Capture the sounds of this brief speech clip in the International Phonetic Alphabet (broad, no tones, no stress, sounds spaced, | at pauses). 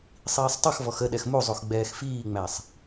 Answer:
sˤ iː sˤ tˤ ʌ x v ɔ x ə ɗ ɛ x m u zˤ u x ɡ͡b ɛː x f iː ŋ͡m æ sˤ